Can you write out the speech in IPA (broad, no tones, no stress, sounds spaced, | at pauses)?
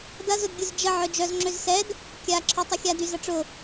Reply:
d ɐ z ʊ d ɡʲ ʊ z d͡ʒ ə ʕ œ d͡ʒ œ z ŋ͡ǁ ø z s ɛ d | kʲ a ǁʰ œ tˤ ə xʲ a d y z ɐ ʈ͡ʂ ʊ